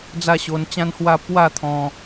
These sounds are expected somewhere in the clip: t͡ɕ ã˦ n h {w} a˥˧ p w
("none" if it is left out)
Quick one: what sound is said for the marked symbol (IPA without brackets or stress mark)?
w